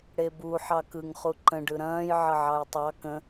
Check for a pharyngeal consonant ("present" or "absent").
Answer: present